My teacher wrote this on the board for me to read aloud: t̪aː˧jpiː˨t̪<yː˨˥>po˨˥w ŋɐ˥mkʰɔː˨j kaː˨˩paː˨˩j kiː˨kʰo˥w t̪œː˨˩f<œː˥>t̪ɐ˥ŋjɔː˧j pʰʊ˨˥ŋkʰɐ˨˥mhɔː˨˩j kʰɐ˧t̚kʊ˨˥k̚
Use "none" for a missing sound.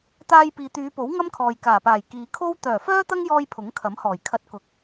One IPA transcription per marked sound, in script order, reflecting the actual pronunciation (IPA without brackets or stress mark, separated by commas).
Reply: yː˨˧, œː˥